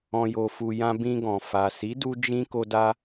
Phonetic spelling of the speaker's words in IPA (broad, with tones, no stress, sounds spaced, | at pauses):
ɔ̃˨ j o˨ f u˨ j ã˧ b ĩ˧ ɡ ɔ̃˨ f a˨ s i˨˦ d u˧ d͡ʒ ĩ˧ k o˧ d a˧